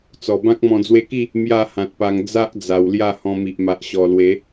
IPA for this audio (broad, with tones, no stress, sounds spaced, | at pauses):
t͡s ɔ˨˩ b ã˦ k̚ m ɔ̃˨˩ d͡z w e˧ k i˥˧ | m j a˥˧ h ã˨ t̚ p a˧ ŋ d͡z a˦ ʔ d͡z a˨˩ w l j a˥˧ h ɔ̃˧ m i˨ ʔ m a˨ ʔ ɕ ɔ˨˩ l w e˨˦